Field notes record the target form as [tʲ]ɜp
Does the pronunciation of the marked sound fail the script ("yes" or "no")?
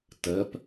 yes